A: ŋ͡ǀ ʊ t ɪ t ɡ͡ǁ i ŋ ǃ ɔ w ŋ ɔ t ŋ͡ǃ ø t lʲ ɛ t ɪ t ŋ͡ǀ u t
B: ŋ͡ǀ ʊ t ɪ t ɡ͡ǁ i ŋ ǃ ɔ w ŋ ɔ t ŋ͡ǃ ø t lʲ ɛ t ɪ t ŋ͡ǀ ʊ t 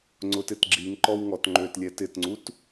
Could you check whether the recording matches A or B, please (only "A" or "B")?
A